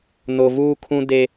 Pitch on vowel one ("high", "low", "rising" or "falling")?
low